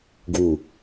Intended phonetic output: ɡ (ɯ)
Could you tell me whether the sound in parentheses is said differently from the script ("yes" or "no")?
yes